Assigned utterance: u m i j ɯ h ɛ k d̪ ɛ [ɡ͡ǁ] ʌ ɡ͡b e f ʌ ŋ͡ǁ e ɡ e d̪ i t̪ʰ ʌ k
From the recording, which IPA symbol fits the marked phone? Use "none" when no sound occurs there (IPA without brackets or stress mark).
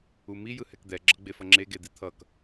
ɡ͡ǁ